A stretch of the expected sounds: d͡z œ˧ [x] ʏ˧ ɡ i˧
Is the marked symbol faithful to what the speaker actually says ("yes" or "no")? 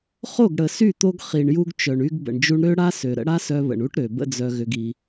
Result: no